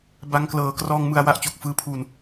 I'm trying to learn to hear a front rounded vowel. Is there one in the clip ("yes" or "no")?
no